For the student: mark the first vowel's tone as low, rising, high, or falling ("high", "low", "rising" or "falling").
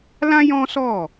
high